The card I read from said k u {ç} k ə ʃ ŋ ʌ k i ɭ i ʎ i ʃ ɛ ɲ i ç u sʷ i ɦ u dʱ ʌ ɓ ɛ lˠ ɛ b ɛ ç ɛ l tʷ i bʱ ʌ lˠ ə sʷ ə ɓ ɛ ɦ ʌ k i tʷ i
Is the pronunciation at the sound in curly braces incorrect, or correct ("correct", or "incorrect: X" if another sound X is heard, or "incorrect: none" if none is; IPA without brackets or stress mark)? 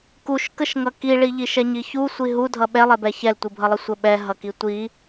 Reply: incorrect: ʃ